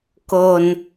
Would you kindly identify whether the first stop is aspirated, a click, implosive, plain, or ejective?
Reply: plain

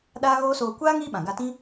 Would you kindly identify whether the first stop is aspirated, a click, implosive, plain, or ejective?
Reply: implosive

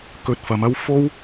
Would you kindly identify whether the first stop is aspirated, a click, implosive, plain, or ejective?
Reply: plain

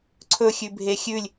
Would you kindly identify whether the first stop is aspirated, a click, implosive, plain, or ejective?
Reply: click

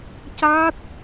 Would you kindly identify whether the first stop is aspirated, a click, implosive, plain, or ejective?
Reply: plain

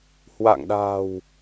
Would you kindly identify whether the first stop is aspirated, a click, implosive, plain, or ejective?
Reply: implosive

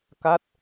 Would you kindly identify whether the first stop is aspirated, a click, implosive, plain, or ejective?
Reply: plain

